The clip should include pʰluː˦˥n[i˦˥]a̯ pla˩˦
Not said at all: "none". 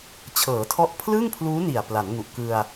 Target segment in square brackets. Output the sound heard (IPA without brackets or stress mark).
i˨˩